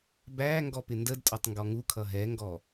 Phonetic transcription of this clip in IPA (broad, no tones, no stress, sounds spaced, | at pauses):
b æ ŋ ɡ ɔ p ɪ n d ə d tʼ ɒ tˤ ŋ ɡ ɔ ŋ u kʰ ʌ ɦ ɛ ŋ ɡ ɔ